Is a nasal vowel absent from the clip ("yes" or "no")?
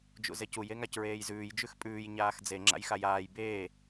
yes